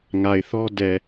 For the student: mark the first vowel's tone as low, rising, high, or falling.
low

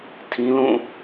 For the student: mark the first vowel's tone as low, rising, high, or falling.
high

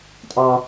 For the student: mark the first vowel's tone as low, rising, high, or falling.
high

